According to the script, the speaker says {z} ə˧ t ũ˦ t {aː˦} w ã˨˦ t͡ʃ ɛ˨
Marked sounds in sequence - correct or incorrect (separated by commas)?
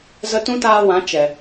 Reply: correct, incorrect